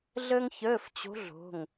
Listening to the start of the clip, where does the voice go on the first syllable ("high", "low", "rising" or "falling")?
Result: high